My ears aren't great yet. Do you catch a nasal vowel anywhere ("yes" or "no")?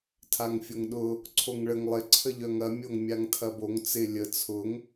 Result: no